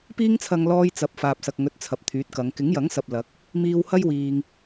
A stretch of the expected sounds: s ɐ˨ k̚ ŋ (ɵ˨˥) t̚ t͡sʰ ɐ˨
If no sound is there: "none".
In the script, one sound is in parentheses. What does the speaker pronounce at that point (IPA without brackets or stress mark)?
ɵ˨˥